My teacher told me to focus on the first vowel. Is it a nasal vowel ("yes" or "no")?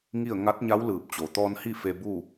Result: no